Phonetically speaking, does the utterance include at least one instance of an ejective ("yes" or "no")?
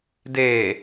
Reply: no